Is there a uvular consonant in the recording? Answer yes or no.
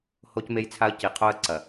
yes